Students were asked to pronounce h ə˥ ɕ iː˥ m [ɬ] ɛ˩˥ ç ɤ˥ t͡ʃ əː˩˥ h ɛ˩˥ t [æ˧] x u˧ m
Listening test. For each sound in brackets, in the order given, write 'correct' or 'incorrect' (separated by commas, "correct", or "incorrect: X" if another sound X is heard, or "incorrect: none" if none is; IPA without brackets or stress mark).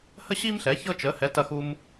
correct, incorrect: ɐ˧